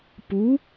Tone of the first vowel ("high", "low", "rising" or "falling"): rising